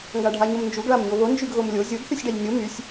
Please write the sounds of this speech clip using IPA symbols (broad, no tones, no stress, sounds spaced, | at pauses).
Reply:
ŋ ɡ a ɖʱ a ɲ o m n d͡ʒ u ɡ ɭ a m ɲ o β o n d͡ʒ y ɡ ɣ o m lʲ o zʲ o ɡ θ y sʲ ɖ a ʎ nʲ o m y sʲ